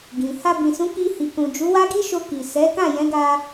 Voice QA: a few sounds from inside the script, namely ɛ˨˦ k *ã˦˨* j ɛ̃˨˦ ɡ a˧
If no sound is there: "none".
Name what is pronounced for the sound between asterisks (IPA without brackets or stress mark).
ã˦˨